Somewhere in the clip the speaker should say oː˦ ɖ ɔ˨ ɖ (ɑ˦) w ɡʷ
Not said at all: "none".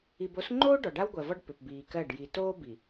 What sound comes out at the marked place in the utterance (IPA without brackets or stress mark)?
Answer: a˦